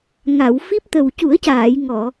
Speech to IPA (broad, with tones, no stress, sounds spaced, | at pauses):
ŋ a˨˩˨ w f i˦˥ p̚ t̪ ə˨˩ w c u˨˩˦ ə̯ c aː˨˩˨ j ŋ ɔ˨˩˨